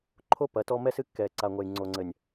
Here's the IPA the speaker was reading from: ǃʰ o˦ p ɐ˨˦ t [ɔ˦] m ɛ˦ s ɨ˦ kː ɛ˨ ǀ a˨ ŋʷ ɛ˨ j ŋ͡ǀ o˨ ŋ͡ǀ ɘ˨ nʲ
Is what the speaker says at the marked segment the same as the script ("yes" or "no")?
yes